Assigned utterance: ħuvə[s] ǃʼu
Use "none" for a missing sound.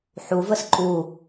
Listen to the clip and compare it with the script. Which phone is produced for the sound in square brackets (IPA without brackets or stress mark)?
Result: s